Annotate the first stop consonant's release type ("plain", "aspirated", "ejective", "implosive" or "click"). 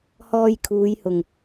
aspirated